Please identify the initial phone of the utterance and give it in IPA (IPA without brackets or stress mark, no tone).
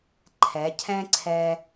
ǃʰ